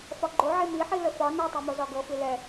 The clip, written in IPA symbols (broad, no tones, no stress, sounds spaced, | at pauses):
f ɒ ɡ͡ǃ o ʕ e m i ħ i l ə f ɒ n ɛ tˤ ɛ m o z ɒ ɡ ɤ f i l ɛ